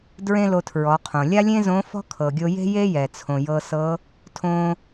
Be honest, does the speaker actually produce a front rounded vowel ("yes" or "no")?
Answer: no